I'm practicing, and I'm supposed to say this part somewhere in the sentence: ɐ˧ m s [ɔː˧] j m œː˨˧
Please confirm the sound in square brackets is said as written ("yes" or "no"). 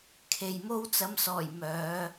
no